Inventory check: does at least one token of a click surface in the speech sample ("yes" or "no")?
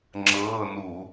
yes